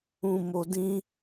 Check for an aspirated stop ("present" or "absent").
absent